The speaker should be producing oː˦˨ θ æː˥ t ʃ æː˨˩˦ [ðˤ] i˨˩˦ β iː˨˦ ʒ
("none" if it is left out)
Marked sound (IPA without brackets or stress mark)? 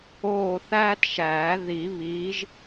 ð